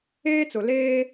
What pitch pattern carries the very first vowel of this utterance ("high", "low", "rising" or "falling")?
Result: high